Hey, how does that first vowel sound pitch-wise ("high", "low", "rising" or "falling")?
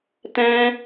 high